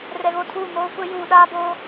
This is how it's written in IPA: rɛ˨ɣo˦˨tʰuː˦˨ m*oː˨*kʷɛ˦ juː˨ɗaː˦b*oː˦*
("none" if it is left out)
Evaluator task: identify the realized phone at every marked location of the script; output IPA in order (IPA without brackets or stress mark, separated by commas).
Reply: oː˦, oː˦